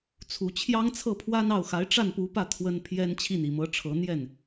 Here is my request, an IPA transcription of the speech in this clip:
t͡sʰ u˨˩ t͡ɕʰ j ɑ˥ ŋ t͡sʰ ɤ˥˩ pʰ w a˥ n ɑ˥˩ ʊ̯ x a˧˥ ɪ̯ ʈ͡ʂ a˥˩ n p u˧˥ p ä˥˩ t̪ʰ w ə˥ n pʰ j ɛ˥ n t͡ɕʰ i˥˩ n i˨˩ m ɤ˧˥ ʈ͡ʂʰ ɤ˧˥ n̪ j ɛ˥˩ n

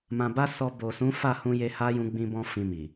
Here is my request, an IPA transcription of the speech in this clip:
m ã˨ b a˧ s ɔ˧ b o˨ s ũ˨˦ f a˦˨ h ũ˧ j e˧ h a˦ j ũ˧ ɡ͡b ĩ˦ b ɔ̃˦ f ĩ˧ m i˨

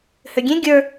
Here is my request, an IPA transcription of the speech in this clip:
h ø ɡʲ ẽ ɡʲ ə˞

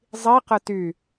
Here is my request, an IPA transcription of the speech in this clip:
zˤ i q ə t y

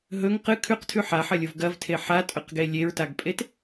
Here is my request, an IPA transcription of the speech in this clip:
ɦ ɵ ŋ q ɨ kʰ ʉ q tʰ ʉ ħ a ħ ɐ lʲ o v ɡ ɐ v tʰ e ħ a tʼ ɵ q ɡ e lʲ e ɹ t a ɡ pʼ e t

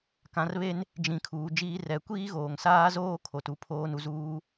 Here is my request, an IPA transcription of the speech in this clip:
k ã˨˦ r β e˦ n | d͡ʒ ĩ˨ kʰ uː˨ d͡ʒ iː˦ r ɛ˨˦ kʷ iː˦ ɣ oː˨ ŋ s aː˦ z oː˦ kʰ o˨ t u˨ pʰ oː˦ n u˨ z uː˦

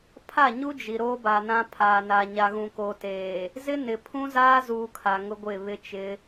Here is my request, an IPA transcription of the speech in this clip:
pʰ a˦˨ ɲ u˦ d͡ʒ i˨ ɾ oː˦ b a˨ n ã˦ pʰ aː˨ n a˨ ɲ a˨ ɣ ũ˨ k oː˨ t eː˨ | z ɪ˦ n ɪ˨ pʰ ũ˦ z aː˦ z uː˦ kʰ a˨ ŋ ʊ˦ ɡʷ ɪ˦˨ β ɪ˦ t͡ʃ ɪ˨˦

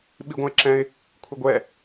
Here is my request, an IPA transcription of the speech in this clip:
ɓ i ɡʷ ə̃ ɪ̯ ǁ ɛ̃ ɪ̯ | kʷʰ ɪ ɡʷ ɛ

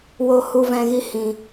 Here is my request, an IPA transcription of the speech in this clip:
w o˧ h u˧ v ɛ̃˧ ɣ i˧ h ĩ˨

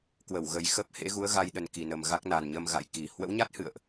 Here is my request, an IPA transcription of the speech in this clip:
k w ə˧˩ w ɣ ə˨˩ j x ə˦˥ p̚ h ḛ˧˥ ɣ u˨˦ ə̯ ɣ a˧ j ɗ ə˨˩ n k i˧˩ n ə˨˩ m ɣ a˦˥ k̚ n a˨˩ n ɲ ə˧ m ɣ a̰˧˨ j k i˨˩ h w ə̰˧˥ w ɲ a˦˥ t̚ h ɨ̰˧˨ ə̯ ʔ

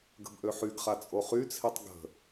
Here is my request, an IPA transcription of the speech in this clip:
ɡ ə̤ b ʔ ø ħ y ɡ χ a t͡sʼ o χ y t͡sʰ i tˤ ɡ ə̤

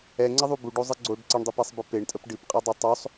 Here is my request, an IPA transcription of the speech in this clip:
ɛ ŋ͡ǀ ə ðˤ u b u ɖ o zˤ ɨ ɡ͡ǀ o ɖ ǀ ə ɳ dˤ o p ɛ sˤ b ɨ p e ɳ tʼ ə p ɖ ɨ p qʼ ɛ dˤ e tˤ o sˤ

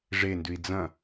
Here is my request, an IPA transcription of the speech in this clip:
ʐ e n d ʉ i̯ d͡z ɐ̃

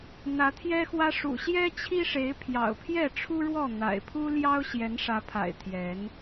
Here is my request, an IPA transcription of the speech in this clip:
n̪ ä˨˦ t̪ʰ j ɛ˦ x w ä˦ ʂ ṵ˨˩ ɕ j ɛ˦ t͡ɕʰ i˦ ʂ e˨˦ ɪ̯ pʰ j ɑ̰˨˩ ʊ̯ pʰ j ɛ˥˨ ʈ͡ʂʰ u˦ ɻ w ɔ˥˨ n̪ a̰˨˩ ɪ̯ pʰ u˦ l j ɑ˦ ʊ̯ ɕ j ɛ˨˦ n ʂ ä˨˦ pʰ a̰˨˩ ɪ̯ t̪ʰ j ɛ˨˦ n

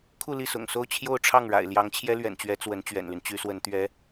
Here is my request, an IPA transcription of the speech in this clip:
kʰ u˥˧ l i˥˩ s ʊ̰˨˩ ŋ s o˥˧ ʊ̯ t͡ɕʰ j o˥˧ ʊ̯ ʈ͡ʂʰ ɑ˥˩ ŋ ɻ a̰˨˩ ɪ̯ l j ɑ˧˥ ŋ t͡ɕʰ j ɛ˥ l ɥ ɛ̰˨˩ n t͡ɕ ɥ ɛ˧˥ t͡s w ə˧˥ n t͡ɕ ɥ ɛ̰˨˩ n l y˦ n t͡ɕ y˧˥ s w ə˧˥ n t̪ ɥ ɛ˥

